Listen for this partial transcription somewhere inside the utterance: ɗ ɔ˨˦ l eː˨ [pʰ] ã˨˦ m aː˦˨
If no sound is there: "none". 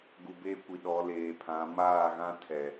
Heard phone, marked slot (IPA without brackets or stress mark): pʰ